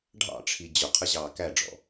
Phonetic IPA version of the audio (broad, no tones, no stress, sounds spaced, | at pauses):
ɖʱ ɑ̰ ʈ͡ʂʰ i d͡ʑ ʊ qʰ ə ʑ ɑː k æ ɖ͡ʐ ɔ̰